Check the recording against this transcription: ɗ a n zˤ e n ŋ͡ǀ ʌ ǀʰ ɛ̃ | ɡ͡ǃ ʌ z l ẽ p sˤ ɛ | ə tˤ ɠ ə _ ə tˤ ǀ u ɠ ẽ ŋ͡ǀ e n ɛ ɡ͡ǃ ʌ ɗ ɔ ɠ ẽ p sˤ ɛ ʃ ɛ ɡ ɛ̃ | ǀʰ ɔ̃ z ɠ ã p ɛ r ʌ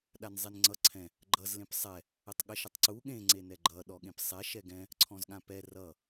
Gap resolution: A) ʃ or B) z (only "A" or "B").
A